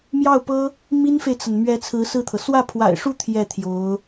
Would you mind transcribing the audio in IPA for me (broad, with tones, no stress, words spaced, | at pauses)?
mjɑ˥˩ʊ̯pɤ˥ | mi˥nfe˨ɪ̯t͡sə˩n mɥɛ˧˥ t͡sʰɹ̩˧˥sɹ̩˥˩t̪ʰɤ˩ swä˥˩pʰwa̰˨˩ɪ̯ʂu˥˧ t̪ʰjɛ˥˩t̪ʰjo˧˥ʊ̯